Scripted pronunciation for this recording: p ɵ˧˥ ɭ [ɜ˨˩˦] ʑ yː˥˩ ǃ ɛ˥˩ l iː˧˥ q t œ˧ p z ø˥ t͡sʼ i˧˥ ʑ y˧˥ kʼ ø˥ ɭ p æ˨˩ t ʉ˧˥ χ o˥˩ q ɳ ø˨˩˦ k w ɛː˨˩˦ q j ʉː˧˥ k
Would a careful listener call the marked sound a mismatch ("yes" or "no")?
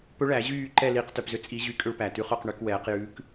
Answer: yes